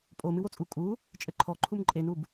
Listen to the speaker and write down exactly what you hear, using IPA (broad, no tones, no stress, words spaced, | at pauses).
pʼo mɨwot͡sʼu kʼu | t͡ʃʼɘǃʰɔ ǃʰumǃʼenub